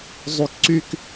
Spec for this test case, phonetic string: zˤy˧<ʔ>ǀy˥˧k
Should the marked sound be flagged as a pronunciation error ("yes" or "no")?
yes